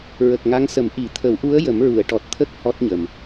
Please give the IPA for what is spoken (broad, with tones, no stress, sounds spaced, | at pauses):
ɹ ə˨˩ k̚ ŋ a˧˥ ŋ s ə˨˩˦ m ʔ i˨˩˦ t̪ʰ ə˨˩˦ w ʔ u˧˥ ə̯ j ə˨˩˦ m ɹ u˨˩˨ ə̯ ʈ ɔ˨˩ t̚ t̪ʰ ə˦˥ k̚ h ɔ˦˥ t̚ ɲ ə˨˩ m